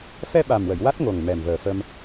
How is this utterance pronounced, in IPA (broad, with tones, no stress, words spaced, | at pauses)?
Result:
fɛ˧ɓa˨˩mwə˨˩˨j wa˦˥t̚ŋo˨˩ŋ mɛ˨˩mvəː˨˩fə˧m